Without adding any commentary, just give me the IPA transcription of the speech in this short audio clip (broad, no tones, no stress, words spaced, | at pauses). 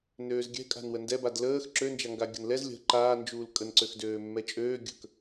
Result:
nøːzɡʲɛ̤ kʼa̤nwəndɛbad ləːx ǁønd͡ʒaŋɡa ɡʲə̤nlɛz lʲə̤ ǃaːnd͡ʒuːl kʼənǀøxdøː mːɛt͡ʃʼøː ɡʲə̤k